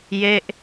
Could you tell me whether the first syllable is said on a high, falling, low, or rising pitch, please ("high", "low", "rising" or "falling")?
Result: falling